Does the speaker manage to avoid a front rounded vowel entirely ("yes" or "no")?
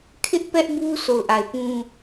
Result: yes